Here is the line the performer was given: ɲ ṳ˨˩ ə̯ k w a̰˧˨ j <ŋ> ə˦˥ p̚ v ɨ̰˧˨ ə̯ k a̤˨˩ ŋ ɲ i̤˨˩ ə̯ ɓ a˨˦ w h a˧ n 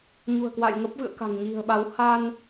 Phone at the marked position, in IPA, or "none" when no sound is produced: ŋ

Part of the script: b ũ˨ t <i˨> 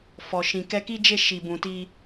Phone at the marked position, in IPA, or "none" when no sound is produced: i˧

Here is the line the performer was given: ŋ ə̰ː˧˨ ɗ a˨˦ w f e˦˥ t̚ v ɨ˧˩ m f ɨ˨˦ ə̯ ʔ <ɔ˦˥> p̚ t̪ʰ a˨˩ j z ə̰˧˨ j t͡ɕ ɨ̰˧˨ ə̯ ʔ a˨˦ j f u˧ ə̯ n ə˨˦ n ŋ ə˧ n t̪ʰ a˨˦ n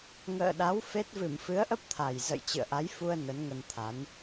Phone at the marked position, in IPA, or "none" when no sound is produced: ə˦˥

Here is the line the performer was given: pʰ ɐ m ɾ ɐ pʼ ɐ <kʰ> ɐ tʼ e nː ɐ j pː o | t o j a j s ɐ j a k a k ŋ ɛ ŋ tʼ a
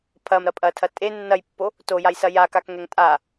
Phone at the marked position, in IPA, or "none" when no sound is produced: tʰ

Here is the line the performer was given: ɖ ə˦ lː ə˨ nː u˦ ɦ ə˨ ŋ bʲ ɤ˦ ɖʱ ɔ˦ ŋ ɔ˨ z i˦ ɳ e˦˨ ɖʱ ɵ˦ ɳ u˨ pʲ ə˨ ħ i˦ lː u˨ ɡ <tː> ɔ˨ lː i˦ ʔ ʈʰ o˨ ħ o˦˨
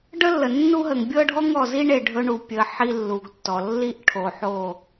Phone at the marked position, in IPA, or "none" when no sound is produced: tː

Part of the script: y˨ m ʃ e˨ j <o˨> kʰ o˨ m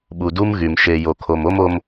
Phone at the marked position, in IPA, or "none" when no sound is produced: o˨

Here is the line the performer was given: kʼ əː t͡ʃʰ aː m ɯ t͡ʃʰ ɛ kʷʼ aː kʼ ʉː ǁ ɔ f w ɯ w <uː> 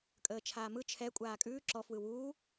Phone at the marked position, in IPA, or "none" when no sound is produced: uː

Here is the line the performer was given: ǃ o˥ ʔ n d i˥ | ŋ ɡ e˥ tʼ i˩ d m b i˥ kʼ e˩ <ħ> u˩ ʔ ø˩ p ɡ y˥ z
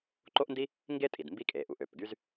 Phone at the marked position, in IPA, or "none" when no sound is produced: ʔ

